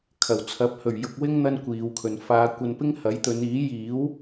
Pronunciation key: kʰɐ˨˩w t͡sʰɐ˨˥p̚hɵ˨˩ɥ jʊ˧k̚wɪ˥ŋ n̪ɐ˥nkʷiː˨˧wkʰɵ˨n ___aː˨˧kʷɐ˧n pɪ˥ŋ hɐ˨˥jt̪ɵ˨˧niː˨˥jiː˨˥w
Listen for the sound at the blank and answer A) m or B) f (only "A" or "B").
B